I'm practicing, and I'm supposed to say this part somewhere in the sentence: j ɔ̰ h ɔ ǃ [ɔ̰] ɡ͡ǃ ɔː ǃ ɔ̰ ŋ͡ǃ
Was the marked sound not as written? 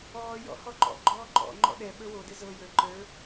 no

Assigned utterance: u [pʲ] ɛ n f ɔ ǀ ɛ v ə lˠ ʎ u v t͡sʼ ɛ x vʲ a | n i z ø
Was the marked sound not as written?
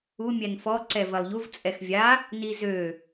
yes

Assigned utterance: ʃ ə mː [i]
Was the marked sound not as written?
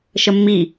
no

